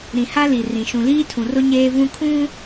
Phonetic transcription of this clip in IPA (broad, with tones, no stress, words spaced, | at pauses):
ɾĩ˨ha˦li˨ rĩ˨ ʃũ˨liː˦tʰũ˨rʊ˦ ɲeː˦vũ˦ kʰũ˦